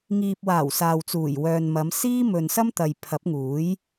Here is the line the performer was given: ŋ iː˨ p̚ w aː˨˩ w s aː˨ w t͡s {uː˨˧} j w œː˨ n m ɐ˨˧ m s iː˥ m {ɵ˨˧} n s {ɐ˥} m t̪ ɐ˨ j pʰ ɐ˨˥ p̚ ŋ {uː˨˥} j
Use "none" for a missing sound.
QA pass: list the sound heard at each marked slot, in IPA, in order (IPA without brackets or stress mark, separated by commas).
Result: uː˨˩, ɵ˨, ɐ˥, uː˨˥